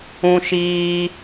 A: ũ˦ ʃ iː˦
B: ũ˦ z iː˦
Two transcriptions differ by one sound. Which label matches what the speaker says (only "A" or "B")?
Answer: A